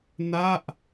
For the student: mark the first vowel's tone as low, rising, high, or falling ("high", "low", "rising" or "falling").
falling